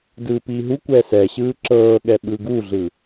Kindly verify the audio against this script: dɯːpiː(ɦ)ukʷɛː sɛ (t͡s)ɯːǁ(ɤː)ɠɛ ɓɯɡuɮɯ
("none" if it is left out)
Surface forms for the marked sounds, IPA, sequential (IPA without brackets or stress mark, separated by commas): ɦ, ɕ, ɤː